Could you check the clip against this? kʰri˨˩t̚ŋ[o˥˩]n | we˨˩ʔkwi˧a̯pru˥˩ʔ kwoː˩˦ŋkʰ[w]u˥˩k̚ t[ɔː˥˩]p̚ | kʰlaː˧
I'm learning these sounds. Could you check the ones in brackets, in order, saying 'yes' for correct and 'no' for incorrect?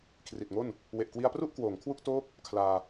yes, yes, no

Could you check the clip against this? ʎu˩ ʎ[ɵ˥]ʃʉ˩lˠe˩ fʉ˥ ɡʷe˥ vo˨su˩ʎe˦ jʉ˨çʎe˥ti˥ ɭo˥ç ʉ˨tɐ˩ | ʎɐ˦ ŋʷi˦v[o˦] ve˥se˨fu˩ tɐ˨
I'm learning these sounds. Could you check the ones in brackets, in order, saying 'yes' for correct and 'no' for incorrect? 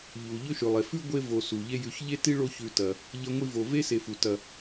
yes, no

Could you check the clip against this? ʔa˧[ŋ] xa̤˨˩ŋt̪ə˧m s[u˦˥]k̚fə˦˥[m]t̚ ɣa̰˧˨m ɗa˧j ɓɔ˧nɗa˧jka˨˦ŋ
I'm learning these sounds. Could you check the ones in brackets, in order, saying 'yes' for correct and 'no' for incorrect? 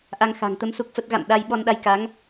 yes, yes, no

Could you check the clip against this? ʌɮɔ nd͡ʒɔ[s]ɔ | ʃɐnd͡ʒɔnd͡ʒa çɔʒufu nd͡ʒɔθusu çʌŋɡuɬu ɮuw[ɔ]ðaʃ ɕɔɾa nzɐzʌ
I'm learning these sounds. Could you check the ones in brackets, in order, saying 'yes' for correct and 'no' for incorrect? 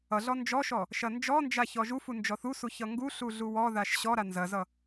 no, yes

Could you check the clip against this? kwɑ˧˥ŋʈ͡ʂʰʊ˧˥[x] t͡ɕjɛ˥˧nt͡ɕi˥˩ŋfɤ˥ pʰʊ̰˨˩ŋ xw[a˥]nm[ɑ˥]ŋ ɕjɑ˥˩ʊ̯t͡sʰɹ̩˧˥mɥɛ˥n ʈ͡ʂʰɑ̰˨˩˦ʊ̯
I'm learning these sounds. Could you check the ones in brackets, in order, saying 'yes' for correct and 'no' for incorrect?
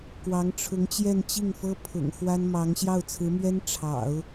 no, yes, no

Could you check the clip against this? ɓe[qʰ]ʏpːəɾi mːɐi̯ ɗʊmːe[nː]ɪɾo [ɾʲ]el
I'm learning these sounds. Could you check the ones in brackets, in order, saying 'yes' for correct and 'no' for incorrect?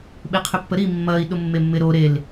yes, no, no

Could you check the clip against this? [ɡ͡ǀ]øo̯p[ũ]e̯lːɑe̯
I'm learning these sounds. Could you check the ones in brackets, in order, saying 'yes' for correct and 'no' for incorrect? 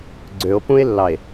yes, yes

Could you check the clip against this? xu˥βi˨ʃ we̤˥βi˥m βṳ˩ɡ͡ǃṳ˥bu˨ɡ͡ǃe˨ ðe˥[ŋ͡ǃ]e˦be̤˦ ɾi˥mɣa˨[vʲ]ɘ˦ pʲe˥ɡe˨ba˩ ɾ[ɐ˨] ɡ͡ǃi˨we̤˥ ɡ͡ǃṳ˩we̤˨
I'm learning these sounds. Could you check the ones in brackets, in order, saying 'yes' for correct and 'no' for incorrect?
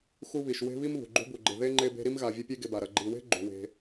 yes, yes, yes

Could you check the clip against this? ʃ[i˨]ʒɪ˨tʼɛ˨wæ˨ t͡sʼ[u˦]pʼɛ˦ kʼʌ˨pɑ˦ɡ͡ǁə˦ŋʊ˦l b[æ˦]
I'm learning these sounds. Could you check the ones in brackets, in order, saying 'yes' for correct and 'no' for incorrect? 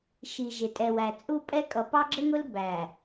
yes, yes, no

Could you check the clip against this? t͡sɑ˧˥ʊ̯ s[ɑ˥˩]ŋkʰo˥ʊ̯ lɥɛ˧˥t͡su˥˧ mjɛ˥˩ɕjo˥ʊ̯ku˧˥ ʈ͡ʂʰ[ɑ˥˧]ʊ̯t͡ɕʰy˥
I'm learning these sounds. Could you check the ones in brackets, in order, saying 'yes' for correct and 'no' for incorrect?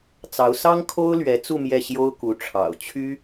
no, no

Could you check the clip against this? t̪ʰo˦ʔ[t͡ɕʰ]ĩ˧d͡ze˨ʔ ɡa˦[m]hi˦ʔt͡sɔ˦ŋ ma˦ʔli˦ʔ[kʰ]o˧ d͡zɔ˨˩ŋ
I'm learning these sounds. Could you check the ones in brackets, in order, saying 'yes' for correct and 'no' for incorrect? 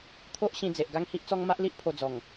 no, no, no

